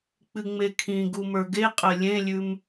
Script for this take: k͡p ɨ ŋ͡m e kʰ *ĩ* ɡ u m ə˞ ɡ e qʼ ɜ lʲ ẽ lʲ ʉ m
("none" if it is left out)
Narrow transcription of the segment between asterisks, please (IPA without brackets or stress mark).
ĩ